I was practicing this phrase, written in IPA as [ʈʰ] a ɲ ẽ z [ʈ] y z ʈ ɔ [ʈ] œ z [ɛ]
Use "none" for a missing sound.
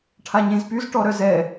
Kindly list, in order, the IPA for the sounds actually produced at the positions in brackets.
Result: ʈʰ, p, ɾ, ɛ

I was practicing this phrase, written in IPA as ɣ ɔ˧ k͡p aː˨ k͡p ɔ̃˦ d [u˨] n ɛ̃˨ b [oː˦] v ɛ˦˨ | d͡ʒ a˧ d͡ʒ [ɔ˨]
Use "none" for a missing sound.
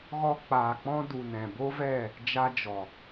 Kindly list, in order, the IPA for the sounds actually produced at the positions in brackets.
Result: u˨, o˦, ɔ˨

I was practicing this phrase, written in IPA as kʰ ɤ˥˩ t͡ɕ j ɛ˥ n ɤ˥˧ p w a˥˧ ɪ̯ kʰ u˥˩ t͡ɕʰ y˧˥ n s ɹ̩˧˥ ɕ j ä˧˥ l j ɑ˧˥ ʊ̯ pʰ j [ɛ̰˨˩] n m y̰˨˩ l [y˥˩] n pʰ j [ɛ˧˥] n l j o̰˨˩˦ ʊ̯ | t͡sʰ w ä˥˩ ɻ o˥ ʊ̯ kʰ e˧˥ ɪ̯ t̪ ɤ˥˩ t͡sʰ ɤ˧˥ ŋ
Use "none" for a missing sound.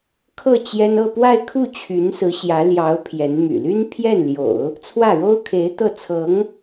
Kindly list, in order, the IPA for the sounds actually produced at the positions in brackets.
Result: ɛ˧˥, y˥, ɛ˥˩

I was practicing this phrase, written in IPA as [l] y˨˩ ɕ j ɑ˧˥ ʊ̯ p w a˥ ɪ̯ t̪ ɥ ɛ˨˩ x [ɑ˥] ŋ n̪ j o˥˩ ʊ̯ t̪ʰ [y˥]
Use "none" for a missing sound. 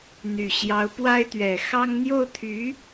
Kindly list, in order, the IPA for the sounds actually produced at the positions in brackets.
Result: n̪, ɑ˥, y˧˥

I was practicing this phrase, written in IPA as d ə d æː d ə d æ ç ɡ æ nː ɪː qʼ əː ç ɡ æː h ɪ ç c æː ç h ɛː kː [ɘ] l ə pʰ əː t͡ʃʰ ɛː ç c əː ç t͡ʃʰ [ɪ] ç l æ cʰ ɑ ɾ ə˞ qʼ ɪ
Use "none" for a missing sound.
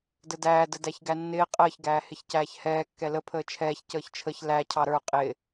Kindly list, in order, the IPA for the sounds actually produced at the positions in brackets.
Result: ɛ, ə

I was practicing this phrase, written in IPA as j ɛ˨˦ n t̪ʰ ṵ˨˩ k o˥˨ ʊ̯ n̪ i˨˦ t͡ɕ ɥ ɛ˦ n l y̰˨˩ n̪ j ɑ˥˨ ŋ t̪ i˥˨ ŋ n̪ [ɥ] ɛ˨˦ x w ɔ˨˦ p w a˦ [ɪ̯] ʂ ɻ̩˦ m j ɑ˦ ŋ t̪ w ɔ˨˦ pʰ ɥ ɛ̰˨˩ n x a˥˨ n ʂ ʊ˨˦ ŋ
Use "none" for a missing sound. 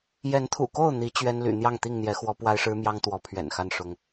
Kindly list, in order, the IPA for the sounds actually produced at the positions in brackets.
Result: j, ɪ̯

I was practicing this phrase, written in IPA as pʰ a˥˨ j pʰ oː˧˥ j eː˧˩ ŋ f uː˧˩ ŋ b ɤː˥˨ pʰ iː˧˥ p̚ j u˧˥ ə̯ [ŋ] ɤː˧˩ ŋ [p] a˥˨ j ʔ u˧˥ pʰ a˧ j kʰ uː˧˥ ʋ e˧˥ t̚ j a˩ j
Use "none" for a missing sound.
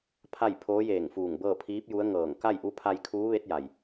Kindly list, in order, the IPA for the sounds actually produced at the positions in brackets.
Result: ŋ, k

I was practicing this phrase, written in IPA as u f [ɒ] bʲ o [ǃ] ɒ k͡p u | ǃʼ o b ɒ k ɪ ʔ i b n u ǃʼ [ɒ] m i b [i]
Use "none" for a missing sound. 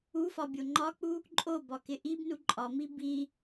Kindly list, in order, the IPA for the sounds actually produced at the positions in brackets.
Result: ɒ, ŋ͡ǃ, ɒ, i

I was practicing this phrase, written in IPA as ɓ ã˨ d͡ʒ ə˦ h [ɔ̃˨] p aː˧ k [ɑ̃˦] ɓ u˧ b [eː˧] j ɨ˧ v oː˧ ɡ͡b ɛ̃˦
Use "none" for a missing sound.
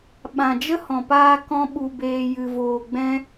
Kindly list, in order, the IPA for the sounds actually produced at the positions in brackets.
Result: ɔ̃˨, ɔ̃˦, eː˧

